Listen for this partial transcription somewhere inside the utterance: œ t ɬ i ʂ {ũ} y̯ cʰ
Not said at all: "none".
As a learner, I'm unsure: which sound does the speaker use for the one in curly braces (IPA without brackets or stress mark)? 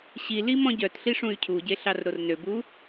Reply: ũ